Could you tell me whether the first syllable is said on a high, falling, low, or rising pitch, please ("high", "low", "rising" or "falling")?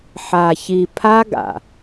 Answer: low